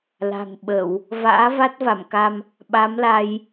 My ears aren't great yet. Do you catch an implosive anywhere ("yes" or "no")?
yes